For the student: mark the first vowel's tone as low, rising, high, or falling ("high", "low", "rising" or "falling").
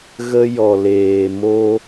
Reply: high